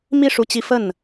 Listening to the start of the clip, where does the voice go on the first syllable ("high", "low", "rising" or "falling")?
falling